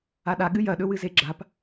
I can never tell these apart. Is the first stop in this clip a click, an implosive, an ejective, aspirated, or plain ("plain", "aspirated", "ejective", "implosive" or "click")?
implosive